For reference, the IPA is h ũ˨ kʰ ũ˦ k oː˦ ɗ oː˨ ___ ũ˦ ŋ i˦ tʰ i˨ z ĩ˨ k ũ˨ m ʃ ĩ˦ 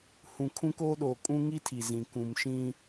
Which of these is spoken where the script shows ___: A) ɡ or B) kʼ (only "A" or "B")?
B